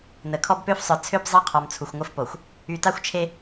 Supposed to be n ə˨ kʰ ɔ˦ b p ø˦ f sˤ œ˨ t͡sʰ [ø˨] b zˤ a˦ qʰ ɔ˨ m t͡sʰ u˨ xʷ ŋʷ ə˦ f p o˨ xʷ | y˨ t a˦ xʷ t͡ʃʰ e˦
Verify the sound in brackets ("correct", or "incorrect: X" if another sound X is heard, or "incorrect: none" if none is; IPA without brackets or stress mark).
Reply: incorrect: ø˦